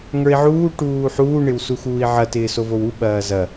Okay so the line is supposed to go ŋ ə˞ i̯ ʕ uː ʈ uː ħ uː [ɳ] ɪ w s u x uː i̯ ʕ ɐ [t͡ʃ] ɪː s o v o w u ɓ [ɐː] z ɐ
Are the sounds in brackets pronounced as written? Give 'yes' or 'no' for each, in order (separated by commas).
yes, no, yes